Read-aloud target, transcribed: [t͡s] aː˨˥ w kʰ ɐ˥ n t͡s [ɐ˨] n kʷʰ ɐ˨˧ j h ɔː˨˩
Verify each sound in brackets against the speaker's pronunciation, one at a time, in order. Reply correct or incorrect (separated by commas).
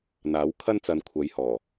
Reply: incorrect, correct